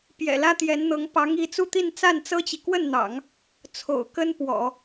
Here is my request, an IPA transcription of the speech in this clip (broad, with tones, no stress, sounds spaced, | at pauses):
p j ɛ̰˨˩ l ä˥ t̪ j ɛ˧˥ n n̪ ɤ˧˥ ŋ p ɑ˧˥ ŋ i˧˥ t͡s u˥˧ t̪ i˥˧ n t͡s a˥˩ n t͡s ɤ˥ t͡ɕ i˨ k w ə˥˩ n n̪ ɑ̰˨˩˦ ŋ | t͡sʰ o̰˨˩ ʊ̯ k ə˥ n p w ɔ̰˨˩˦